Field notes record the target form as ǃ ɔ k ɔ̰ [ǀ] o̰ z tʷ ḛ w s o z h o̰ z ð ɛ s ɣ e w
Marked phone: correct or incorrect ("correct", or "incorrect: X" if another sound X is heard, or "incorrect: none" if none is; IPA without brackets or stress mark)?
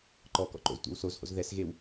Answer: incorrect: ǃ